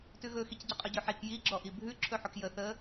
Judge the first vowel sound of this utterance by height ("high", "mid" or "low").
high